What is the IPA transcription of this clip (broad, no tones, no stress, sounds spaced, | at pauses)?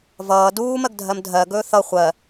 v ʌː d uː m ɜ ɡ dʱ ɜ m dʱ ɜ ɡ ɵː θ ʌ χʷ ɜ